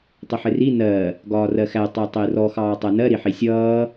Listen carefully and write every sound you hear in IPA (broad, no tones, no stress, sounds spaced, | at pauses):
tˤ ɪ ħ ɪ r i n ɜ | ɡ ɒː r ɜ x æ tˤ ɪː tˤ ɪː r ɔ x ɑː tˤ æ n ɜ ɾ i ħ i sʲ ʌː